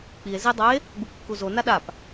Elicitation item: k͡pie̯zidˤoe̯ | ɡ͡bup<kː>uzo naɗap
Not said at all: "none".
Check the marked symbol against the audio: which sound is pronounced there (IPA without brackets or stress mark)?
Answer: kː